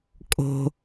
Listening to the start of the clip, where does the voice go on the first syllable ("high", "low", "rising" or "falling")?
low